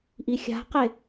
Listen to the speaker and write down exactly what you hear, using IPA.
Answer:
ʔixʲa̤qe

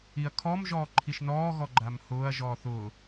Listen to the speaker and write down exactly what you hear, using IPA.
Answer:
iɐ̯kʰɔm ʒɔːǃʰiʃnɔːɣɔ ɡ͡ǃamhʊːɐ̯ʒɔː θʊː

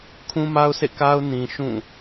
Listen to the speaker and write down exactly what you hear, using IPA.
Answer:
kʰũ˦ma˦ʊ̯sḛ˦˨ka˦ʊ̯ nĩ˨ ʃũ˦˨

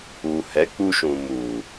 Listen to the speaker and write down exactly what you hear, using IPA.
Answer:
u˨hɛ˨˦k͡pu˧ʃũ˨ mu˨

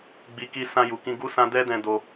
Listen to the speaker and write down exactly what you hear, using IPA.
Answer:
ɡ͡bi˨ki˧ sã˧ju˨kĩ˧ ɡu˦sã˦ dɛ˦dɛ̃˧do˧

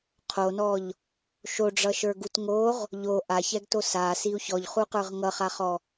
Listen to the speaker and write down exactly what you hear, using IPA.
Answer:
qʰonɔʎ | ʃoɖ͡ʐʌʃə˞ ɡutŋoʁ | ʎo ʔaçɛɡto sa siu̯çɔʎχu qə˞ʁŋʌχaχɔ

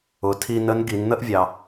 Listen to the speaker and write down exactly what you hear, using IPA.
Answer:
ʊ˩tʰi˧ nə˧˥nɡi˩˧nn̪ə˥ʔvʲɑ˩

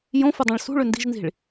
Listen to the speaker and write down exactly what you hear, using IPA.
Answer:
jõfɯdˤɑ̃ɭ sṳɭø ndi̤ʒnzi̤ɭ

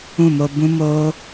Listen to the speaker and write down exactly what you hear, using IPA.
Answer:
ũ˦˨mo˧ bũ˦moː˦

